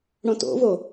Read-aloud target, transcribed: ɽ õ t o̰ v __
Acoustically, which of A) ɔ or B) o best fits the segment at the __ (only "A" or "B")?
B